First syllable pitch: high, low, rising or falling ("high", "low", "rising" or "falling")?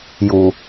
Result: low